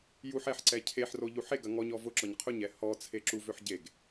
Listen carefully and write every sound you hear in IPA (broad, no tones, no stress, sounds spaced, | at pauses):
j u ħ ɛ ħ ǀ ɛ cʰ e ħ r o ʎ u ħ e ɡ ɐ ŋ ɔ ɲ ɔ v ʊ ǁ ɔ ɲ qʰ ʊ ɲ ɛ h ɔ t͡sʰ e ǁ u v ø ħ ɟ e ɡ